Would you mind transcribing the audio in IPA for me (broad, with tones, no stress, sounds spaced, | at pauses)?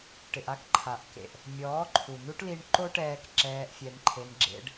ʈ ɪ˨ ʔ a˦ k ǃʰ a˨ ʔ k ḛ˨ ʔ | mʲ ɔː˨˦ ǃʰ u˨ n u˦ ʈ l i˧ ɳ ǃ o˦ ʈ ɛː˧ k ǁ ɛː˧ ʔ fʲ ɛ˧ n ǃʰ e˧ n ɡ͡ǁ ḛ˧ ɖ